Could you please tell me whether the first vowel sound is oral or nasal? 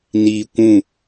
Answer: oral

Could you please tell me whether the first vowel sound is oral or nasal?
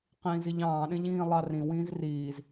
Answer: nasal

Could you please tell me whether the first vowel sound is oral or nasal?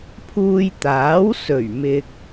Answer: oral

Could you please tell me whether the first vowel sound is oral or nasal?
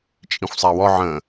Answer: nasal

